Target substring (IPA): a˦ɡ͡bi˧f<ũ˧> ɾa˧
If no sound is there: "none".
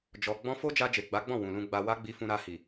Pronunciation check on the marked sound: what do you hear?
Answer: ũ˧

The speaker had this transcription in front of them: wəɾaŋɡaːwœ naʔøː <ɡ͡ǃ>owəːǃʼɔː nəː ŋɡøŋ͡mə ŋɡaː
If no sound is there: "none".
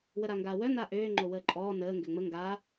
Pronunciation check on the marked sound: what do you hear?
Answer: ŋ͡ǃ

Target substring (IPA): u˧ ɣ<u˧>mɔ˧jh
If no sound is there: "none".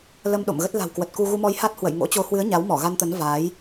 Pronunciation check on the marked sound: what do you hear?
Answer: u˧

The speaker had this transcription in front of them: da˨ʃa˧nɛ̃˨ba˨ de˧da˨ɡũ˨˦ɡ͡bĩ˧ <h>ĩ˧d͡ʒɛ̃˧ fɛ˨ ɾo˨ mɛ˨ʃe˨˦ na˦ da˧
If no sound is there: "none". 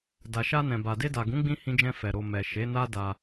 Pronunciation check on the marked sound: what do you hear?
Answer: h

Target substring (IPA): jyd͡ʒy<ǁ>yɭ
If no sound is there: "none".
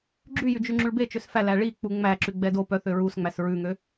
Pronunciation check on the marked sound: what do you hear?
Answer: ŋ͡ǁ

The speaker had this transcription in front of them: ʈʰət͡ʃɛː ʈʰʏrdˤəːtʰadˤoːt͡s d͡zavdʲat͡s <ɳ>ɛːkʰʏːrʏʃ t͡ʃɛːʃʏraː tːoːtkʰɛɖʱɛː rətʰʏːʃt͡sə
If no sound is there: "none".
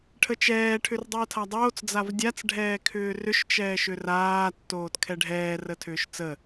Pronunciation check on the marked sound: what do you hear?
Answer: ɖʱ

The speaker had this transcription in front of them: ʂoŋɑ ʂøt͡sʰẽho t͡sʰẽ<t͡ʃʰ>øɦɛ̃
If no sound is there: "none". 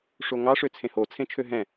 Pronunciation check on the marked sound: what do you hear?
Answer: t͡ʃʰ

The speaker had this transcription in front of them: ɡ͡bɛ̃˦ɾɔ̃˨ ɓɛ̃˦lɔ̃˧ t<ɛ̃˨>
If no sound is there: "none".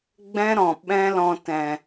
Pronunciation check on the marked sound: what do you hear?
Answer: ɛ̃˨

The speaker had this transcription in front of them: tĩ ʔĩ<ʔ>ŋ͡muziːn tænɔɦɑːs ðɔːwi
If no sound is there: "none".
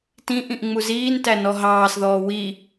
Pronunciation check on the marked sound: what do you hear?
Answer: ʔ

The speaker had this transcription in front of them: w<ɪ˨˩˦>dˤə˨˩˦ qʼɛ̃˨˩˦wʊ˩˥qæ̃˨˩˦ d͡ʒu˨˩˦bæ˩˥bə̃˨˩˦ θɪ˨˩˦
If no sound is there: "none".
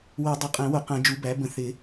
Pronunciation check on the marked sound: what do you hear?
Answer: ɛ˨˩˦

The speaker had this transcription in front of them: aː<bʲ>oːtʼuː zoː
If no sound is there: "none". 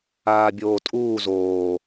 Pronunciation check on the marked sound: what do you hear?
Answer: bʲ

